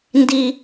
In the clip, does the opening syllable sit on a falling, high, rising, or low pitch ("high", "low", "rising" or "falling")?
low